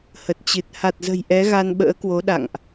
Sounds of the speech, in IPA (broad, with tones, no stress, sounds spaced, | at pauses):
h ə˨˩ t̚ t͡ɕ ɨ˨˩ t̚ h a˨˩ t̚ z ə̤˨˩ j ʔ ɛ˨˦ ɣ a˧ n ɓ ə̰ː˧˥ k w o˨˦ ɗ a̰˧˨ ŋ ʔ